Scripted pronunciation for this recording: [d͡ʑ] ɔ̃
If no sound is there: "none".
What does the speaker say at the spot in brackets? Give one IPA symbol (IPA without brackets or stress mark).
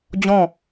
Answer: d͡ʑ